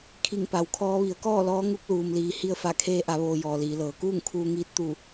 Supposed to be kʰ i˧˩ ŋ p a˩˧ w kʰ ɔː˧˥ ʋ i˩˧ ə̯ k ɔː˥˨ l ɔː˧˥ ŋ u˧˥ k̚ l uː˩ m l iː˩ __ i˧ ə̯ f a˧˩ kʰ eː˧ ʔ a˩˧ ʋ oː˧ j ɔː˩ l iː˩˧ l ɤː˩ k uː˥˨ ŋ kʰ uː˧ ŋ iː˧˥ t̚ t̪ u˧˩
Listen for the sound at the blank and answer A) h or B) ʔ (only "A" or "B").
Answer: A